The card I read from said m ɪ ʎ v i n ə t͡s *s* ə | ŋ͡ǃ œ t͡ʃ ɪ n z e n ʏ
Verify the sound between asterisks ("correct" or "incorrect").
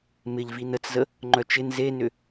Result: incorrect